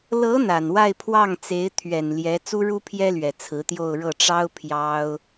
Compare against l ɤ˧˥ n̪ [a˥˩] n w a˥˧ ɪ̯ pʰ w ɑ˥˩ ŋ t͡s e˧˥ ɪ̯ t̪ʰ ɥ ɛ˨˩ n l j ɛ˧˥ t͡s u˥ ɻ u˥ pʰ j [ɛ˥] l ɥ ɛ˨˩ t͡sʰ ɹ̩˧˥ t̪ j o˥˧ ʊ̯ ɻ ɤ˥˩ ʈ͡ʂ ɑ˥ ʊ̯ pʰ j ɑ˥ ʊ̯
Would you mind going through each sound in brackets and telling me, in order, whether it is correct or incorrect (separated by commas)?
incorrect, correct